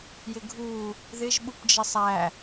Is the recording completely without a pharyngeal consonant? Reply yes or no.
yes